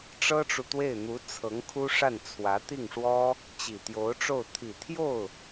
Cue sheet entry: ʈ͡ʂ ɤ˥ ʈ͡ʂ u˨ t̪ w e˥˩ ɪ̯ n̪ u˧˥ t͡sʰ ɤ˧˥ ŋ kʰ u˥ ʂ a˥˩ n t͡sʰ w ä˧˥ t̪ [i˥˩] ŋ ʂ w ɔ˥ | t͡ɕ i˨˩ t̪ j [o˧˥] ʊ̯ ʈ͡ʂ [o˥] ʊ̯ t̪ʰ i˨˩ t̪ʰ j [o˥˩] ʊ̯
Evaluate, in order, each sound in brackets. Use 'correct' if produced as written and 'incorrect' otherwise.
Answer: correct, correct, incorrect: o˥˩, correct

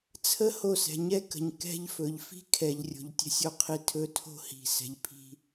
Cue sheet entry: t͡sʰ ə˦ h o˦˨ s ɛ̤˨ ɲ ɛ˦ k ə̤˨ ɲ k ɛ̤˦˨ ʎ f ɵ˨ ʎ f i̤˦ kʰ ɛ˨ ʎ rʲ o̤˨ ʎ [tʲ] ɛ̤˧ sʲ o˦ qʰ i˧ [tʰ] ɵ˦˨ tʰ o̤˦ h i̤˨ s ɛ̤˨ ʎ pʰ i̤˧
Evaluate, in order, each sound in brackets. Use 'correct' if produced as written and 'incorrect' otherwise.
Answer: correct, correct

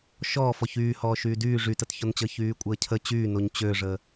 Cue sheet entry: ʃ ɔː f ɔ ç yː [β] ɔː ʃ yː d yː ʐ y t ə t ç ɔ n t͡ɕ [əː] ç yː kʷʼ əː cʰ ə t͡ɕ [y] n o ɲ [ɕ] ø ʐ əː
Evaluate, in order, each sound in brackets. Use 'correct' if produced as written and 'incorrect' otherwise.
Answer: incorrect: h, correct, incorrect: yː, incorrect: t͡ɕ

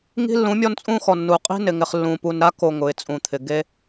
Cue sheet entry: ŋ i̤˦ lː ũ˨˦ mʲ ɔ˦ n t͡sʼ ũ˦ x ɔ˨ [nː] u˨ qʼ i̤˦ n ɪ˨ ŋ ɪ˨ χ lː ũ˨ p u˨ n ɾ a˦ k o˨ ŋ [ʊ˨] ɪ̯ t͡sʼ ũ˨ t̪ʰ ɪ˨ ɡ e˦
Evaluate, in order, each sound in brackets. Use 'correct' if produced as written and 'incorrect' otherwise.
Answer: correct, correct

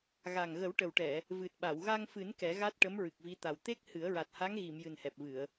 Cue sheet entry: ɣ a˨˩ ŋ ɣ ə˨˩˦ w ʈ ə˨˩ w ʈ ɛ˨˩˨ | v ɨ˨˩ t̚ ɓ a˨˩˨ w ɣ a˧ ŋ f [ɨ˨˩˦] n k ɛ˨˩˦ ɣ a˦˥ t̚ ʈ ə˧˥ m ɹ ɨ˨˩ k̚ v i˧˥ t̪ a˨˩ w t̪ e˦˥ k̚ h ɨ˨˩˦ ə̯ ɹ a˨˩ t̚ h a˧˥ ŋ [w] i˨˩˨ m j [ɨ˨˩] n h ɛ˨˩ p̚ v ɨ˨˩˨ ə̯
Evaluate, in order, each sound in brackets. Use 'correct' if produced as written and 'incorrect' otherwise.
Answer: correct, incorrect: ɣ, correct

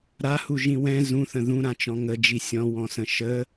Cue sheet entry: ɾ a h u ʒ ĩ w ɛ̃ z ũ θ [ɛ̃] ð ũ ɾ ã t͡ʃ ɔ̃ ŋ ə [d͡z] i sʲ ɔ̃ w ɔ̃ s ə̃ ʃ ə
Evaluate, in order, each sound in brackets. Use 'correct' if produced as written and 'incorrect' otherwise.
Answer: incorrect: ə̃, incorrect: d͡ʒ

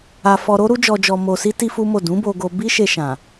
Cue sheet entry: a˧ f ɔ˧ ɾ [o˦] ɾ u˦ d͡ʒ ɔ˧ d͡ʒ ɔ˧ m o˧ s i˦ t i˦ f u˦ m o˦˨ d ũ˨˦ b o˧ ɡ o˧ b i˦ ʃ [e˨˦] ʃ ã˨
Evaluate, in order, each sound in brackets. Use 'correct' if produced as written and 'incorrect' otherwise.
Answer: correct, incorrect: e˧

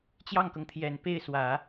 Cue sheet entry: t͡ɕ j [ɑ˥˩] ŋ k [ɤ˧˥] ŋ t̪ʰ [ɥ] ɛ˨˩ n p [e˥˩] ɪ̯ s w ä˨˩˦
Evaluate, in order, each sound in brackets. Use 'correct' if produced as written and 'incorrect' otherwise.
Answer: correct, incorrect: ɤ˩, incorrect: j, correct

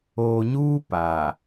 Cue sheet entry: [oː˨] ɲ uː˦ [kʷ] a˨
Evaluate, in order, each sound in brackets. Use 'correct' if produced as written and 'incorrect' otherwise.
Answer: correct, incorrect: p

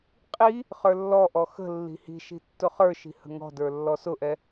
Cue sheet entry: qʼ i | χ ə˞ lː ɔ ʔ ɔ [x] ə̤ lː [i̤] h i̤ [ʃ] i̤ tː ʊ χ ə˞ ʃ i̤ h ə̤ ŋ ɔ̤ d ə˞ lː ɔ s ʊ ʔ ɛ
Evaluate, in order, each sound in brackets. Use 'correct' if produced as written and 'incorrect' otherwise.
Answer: correct, correct, correct

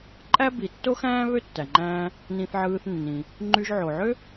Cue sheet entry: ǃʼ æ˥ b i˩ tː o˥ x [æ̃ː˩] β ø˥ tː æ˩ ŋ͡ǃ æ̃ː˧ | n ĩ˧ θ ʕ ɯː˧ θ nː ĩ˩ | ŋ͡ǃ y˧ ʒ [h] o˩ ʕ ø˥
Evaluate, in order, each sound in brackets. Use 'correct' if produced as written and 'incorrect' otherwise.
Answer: incorrect: æ̃ː˥, incorrect: ʕ

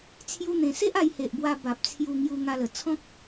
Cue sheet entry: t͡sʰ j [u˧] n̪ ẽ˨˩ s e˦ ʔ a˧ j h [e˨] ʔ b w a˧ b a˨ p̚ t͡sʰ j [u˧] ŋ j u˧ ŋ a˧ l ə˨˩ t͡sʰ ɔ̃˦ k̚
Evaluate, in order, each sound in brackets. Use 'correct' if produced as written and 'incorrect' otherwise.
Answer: correct, correct, correct

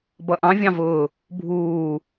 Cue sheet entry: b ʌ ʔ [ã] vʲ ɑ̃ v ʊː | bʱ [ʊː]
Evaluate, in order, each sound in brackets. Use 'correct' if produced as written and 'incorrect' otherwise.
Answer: incorrect: ɑ̃, incorrect: uː

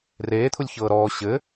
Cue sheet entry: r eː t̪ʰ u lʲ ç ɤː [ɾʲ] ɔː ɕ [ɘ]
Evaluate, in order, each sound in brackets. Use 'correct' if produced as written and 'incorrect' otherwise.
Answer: incorrect: ɾ, correct

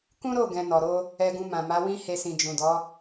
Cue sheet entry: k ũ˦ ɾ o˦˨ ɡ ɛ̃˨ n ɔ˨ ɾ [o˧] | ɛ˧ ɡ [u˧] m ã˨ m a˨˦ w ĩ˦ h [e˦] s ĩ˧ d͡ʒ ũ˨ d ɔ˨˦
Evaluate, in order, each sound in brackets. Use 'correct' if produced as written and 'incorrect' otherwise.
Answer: correct, incorrect: ũ˧, correct

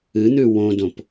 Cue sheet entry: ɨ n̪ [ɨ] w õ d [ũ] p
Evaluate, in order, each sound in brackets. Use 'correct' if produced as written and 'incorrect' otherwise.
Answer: incorrect: ʉ, incorrect: õ

